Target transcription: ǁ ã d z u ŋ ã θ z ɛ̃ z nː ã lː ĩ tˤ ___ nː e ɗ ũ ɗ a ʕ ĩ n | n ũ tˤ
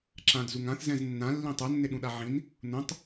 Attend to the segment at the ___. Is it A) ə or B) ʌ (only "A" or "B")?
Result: B